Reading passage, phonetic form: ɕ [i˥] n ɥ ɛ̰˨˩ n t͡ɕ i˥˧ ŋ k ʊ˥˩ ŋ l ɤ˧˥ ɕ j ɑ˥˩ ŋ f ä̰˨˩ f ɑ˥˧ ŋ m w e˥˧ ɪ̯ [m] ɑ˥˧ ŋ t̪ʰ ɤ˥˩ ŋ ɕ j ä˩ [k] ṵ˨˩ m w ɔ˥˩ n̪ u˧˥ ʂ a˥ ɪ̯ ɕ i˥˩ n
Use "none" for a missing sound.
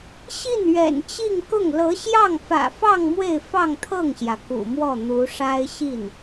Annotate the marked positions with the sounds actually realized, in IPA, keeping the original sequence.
i˥˩, f, k

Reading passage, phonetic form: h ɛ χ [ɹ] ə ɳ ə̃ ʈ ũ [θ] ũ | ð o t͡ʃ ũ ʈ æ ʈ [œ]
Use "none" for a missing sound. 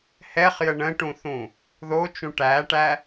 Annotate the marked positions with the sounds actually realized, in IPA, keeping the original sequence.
j, θ, æ

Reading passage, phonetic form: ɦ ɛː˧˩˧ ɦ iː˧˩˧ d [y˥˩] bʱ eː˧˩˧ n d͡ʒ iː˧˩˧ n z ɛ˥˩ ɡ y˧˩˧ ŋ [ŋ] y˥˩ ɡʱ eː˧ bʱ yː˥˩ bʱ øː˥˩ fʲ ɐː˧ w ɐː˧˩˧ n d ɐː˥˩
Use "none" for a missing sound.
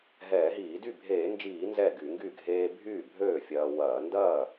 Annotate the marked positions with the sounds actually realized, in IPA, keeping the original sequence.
y˥˩, ɡ

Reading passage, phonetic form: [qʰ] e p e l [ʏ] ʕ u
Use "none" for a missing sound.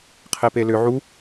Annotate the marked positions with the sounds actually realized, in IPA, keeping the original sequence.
qʰ, ʏ

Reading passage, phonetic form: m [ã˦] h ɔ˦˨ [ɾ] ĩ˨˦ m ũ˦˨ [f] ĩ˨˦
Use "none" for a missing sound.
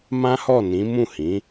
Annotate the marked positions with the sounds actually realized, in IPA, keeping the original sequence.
ã˦, n, h

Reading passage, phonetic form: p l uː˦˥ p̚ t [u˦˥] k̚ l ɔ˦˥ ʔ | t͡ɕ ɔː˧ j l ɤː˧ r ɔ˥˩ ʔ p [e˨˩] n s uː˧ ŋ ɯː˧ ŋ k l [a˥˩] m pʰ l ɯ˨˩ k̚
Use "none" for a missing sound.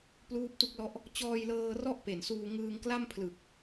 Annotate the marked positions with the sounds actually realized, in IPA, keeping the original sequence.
u˦˥, e˨˩, a˥˩

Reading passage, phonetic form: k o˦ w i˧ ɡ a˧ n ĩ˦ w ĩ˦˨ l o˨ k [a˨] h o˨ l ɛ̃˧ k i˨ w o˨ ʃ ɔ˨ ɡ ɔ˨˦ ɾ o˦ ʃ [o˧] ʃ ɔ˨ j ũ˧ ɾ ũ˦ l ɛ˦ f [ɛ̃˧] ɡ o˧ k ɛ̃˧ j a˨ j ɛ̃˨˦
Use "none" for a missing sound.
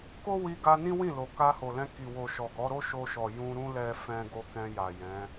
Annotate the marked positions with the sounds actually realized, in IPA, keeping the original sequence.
a˧, o˧, ɛ̃˦

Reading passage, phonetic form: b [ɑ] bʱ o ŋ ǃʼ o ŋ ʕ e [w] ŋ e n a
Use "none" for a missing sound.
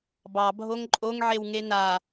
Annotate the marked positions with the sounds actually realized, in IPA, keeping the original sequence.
ɑ, w

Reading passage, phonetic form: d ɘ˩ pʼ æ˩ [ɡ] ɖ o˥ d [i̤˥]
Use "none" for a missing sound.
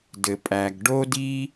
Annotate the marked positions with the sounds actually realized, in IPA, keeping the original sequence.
ɡ, i˥

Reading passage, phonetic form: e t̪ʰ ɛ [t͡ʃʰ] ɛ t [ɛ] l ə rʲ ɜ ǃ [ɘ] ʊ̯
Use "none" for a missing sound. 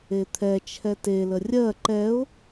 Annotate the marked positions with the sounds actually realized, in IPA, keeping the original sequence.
t͡ʃʰ, e, ɛ

